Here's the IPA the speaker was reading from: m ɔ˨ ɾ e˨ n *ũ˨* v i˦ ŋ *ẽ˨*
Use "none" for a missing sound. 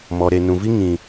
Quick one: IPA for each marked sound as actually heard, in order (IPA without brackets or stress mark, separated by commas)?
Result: ũ˨, ĩ˨